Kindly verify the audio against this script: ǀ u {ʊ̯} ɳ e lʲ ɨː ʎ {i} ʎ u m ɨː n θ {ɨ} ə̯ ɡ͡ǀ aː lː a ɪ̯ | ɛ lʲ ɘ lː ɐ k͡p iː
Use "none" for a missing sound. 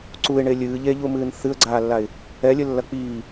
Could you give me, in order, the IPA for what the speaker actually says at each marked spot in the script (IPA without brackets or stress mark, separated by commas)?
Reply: ɪ̯, e, ɨ